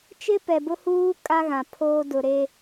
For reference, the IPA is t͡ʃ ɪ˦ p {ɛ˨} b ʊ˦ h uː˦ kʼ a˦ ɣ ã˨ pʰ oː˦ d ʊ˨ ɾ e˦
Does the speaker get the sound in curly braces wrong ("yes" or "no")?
no